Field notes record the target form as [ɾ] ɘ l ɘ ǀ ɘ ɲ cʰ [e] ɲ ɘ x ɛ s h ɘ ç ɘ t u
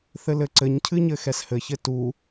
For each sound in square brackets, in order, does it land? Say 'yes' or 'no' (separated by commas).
no, no